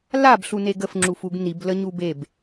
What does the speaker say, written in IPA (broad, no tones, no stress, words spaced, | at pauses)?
labɬune ɡəfŋ͡ǁufuɡ nibləɲu beb